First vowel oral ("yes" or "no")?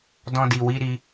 no